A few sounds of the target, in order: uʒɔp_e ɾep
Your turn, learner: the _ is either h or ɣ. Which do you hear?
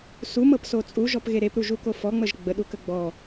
ɣ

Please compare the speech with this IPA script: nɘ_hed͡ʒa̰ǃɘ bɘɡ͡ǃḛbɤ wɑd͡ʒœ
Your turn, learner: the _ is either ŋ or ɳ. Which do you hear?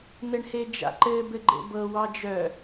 ɳ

